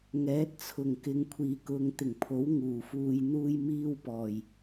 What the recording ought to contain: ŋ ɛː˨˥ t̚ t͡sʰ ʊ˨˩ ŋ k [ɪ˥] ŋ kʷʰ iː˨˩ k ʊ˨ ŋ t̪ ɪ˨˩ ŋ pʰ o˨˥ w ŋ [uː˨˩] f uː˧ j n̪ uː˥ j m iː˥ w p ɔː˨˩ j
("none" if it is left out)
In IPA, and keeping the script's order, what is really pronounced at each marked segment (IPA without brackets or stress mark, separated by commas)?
ɪ˨, uː˨˩